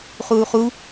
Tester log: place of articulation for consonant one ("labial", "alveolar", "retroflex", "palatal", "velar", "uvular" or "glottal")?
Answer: uvular